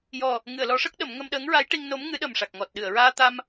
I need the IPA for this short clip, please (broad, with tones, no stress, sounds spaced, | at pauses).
j ɔ˨˩ | ŋ ɨ˨˩˨ ə̯ l ɔ˨˩˦ ʂ ə˦˥ k̚ ɗ ə˨˩˦ m ŋ ə˧ m ɗ əː˧˥ ŋ ɹ a˧˥ j ʈ i˧ ŋ n o˧˥ m ŋ ɨ˧˥ ɗ ə˨˩ m ʂ a˨˩ k̚ ŋ ɔ˨˩ t̚ ɗ ɨ˨˩˨ ə̯ ɹ aː˧ t̪ a˧ m